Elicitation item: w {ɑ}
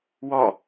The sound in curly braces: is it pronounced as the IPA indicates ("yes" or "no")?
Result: no